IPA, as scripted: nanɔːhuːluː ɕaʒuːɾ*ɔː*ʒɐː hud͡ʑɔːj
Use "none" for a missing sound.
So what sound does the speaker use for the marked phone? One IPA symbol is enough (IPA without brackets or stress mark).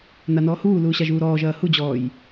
ɔː